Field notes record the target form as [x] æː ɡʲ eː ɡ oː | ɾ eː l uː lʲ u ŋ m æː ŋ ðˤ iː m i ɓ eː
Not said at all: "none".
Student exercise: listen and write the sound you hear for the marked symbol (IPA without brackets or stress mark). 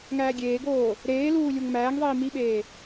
ŋ